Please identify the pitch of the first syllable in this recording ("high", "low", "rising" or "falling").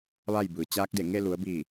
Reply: falling